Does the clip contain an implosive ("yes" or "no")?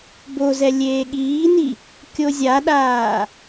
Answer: yes